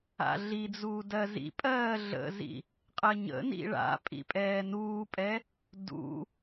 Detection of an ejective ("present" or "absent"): present